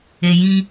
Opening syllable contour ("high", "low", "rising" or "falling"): low